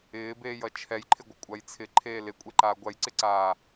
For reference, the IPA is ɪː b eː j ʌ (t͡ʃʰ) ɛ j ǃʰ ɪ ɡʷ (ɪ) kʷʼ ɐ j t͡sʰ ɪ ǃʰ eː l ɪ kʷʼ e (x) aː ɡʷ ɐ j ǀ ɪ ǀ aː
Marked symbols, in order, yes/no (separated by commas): yes, yes, no